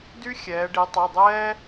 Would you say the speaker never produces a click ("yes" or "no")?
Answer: yes